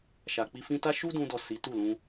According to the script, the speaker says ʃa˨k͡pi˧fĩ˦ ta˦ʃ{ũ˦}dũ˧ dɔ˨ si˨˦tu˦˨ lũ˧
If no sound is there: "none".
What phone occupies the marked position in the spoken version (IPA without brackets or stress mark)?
u˦